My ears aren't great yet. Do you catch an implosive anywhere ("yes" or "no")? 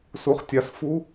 no